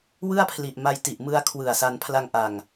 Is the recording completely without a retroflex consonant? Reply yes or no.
yes